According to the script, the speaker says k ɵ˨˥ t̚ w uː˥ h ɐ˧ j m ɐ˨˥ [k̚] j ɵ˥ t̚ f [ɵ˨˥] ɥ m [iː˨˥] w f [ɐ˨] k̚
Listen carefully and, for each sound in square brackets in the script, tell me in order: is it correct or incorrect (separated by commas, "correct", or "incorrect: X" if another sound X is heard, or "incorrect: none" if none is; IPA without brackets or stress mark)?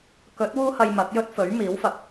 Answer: correct, correct, correct, correct